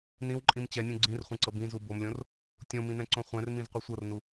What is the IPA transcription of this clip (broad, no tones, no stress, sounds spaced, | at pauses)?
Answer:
n ĩ w ǃʼ ĩ m t͡ɕ ɛ nʲ ũ ɡ͡ǀ ĩ r χʷ ɛ̃ ǀ ɤ b ĩ z u b o m lʲ õ r | tʲ õ m ĩ n ɛ̃ ǀ õ χʷ ɛ̃ r m ĩ z qʷ ɯ sʷ ɤ r n u